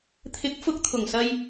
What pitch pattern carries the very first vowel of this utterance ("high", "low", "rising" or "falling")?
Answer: rising